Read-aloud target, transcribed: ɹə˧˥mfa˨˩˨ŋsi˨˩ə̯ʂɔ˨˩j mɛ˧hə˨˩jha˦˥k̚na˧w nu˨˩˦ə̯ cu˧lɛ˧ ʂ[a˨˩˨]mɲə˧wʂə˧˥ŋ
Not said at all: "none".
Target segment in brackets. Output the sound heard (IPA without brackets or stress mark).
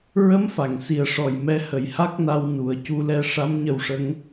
a˧˥